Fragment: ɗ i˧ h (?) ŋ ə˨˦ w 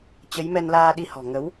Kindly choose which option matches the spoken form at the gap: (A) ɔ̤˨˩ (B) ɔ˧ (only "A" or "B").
A